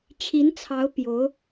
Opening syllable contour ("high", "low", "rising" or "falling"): rising